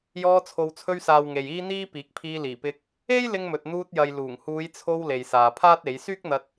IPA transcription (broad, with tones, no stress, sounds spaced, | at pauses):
j ɔː˧ t͡sʰ o˨ w t͡sʰ ɵ˧ ɥ s aː˨ w ŋ e˨ j iː˥ n̪ iː˥ p iː˨˥ k̚ pʰ iː˧ l iː˨˩ p ɪ˧ k̚ | e˥ j l ɪ˧ ŋ m ɵ˨ t̚ n̪ uː˧ t̚ j ɐ˨ j l uː˨˩ ŋ h uː˨˧ j t͡sʰ o˧ w l e˨ j s aː˨ pʰ aː˥ t̚ e˨˥ j s yː˥ k̚ n̪ ɐ˧ t̚